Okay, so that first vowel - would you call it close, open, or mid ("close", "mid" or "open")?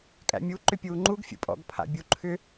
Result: open